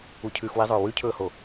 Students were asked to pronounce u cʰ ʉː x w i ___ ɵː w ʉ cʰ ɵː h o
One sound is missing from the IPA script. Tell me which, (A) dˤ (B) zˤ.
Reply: B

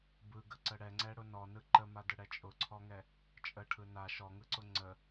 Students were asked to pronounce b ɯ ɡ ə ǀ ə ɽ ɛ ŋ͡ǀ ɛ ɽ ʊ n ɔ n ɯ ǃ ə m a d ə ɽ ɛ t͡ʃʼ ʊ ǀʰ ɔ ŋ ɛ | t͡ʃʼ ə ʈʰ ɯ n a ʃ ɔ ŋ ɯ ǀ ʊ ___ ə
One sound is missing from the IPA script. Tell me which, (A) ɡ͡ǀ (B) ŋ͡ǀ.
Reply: B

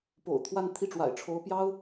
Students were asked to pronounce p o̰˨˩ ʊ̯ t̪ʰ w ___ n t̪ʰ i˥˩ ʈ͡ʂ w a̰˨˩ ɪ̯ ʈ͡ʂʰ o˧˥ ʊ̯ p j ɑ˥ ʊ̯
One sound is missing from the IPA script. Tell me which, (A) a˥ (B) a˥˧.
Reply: B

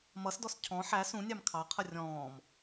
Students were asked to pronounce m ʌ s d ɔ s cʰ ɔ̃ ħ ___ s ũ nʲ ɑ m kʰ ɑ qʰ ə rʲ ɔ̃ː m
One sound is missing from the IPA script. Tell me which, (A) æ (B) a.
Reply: A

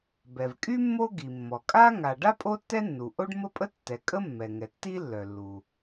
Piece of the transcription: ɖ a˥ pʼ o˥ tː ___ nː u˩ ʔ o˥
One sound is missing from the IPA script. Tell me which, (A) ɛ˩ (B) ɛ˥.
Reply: B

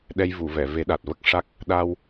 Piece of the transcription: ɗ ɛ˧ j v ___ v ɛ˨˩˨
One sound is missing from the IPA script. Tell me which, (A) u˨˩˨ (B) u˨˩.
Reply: A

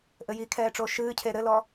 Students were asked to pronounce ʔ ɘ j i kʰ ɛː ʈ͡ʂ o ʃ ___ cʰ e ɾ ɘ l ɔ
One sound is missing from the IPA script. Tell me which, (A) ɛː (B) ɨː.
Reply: B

